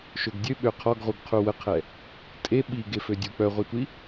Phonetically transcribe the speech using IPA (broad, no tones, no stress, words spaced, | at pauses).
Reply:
ʃøɡdʲøɓø qʰɔɡʁuɡ qʰuwəqʰɛ | tʼe ɓiɡefødʲu k͡pœʁʷɛtʷi